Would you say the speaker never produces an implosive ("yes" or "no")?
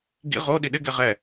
no